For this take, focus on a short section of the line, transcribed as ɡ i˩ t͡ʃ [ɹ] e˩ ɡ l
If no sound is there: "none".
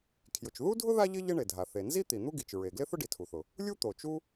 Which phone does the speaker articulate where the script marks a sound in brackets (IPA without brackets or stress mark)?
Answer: ɹ